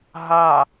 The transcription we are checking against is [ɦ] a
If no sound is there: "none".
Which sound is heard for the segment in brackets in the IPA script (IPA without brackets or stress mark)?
ɦ